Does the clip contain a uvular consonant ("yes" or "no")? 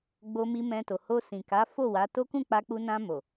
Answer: no